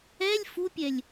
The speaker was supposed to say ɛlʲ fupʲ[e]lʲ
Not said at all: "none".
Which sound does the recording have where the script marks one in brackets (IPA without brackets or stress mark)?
ɛ